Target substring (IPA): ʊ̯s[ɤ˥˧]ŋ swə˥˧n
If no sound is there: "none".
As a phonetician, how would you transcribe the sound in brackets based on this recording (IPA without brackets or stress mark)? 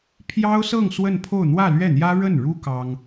ɤ˥˧